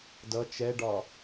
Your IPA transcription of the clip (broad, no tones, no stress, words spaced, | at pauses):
dʌ t͡ʃɛɖɒ